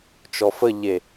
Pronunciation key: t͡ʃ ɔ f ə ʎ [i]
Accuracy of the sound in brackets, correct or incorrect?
incorrect